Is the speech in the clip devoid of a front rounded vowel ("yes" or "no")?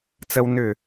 no